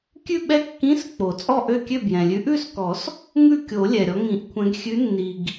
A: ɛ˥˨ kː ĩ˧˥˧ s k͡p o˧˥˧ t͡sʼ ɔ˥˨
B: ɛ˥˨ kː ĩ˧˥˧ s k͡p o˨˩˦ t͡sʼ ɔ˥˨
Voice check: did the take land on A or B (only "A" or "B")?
B